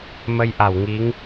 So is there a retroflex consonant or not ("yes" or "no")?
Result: no